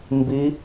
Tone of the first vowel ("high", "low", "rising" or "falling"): rising